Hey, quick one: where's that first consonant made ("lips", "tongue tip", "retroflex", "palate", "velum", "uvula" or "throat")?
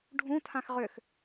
retroflex